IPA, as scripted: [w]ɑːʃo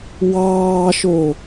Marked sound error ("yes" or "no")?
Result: no